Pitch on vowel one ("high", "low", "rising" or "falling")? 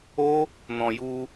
high